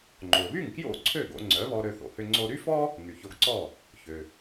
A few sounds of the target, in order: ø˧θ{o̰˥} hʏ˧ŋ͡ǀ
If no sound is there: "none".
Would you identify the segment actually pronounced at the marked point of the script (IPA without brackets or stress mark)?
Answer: o̰˩